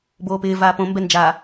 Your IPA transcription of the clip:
boːpɪː vaːpõ mbɛnd͡ʒa

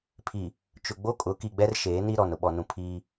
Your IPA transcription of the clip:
pʰi˨ | t͡ʃʊ˨ ɡ͡bo˦kʼʊ˨˦ ki˨ɡ͡bɛ˦r ʃeː˨˦ni˦ɾɔ˨n ʊ˨ɓɔ˨nũ˨ pʰiː˦

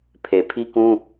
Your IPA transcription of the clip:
pʰe˨pʰi˦kũ˦

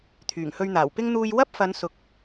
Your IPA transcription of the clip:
t̪ʰyː˨˩ŋhɵ˧ɥn̪aː˨˩wpɪ˥ŋ n̪uː˧j wɐ˥p̚fɐ˨˧n sʊ˨k̚

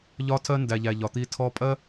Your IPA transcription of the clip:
ʎɒ˦tʰɜ˦ ndæ˨ʎæ˨ ʎɒ˨t̪i˧ tʰɔ˧pʼɜ˦

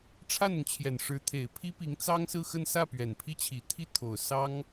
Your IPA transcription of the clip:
ʈ͡ʂʰa˥˩nʊ˩ŋt͡ɕʰjɛ˨˩n ʂɻ̩˧˥t̪ʰe˨˩ɪ̯pʰi˥ pi˧˥ŋt͡sɑ˥ŋsɹ̩˥˧xə˥˧n sä˥˩pɥɛ˨˩npʰi˥˩ t͡ɕʰi˨˩t̪ʰi˥˩t̪ʰo˨˩ʊ̯ sɑ˥ŋ

